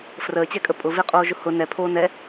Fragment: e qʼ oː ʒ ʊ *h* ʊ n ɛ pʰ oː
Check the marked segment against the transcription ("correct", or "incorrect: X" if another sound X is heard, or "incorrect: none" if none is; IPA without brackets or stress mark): correct